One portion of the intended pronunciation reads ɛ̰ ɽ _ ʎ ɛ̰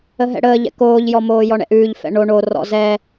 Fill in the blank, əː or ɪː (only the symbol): əː